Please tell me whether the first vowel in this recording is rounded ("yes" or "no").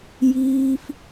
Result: no